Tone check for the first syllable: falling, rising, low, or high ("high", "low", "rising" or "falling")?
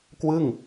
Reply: falling